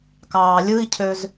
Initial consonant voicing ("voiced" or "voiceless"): voiceless